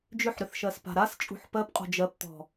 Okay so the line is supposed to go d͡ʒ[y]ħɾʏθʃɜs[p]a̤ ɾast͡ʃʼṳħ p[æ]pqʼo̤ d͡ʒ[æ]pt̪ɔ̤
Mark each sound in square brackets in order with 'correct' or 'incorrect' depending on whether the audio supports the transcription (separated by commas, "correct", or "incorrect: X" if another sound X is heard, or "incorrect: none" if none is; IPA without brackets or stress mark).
incorrect: ʏ, correct, incorrect: ɜ, incorrect: ɜ